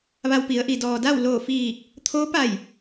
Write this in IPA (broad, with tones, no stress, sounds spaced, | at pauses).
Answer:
ʋ a˧ w p i˩˧ ə̯ ʔ i˩ d ɔː˩ d a˥˨ w l oː˧˩ f iː˧˩ k̚ | t̪ʰ oː˧˥ p a˧˩ j